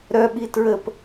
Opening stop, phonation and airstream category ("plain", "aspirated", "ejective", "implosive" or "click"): implosive